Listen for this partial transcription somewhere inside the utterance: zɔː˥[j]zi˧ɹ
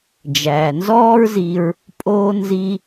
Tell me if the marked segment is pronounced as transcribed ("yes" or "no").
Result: no